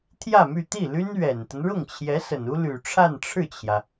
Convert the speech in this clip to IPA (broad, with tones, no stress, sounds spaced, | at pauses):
t̪ʰ j ä˥˧ m y˥˧ t̪ i˥˩ l y˥ n ɥ ɛ˨˩ n t̪ ə˦ n ɻ ʊ˥˩ ŋ t͡ɕʰ j ɛ˧˥ s ə˨˩ n u˥ l y˨˩ ʈ͡ʂʰ a˥˧ n ʈ͡ʂʰ ɻ̩˥˩ t͡ɕʰ j ä˩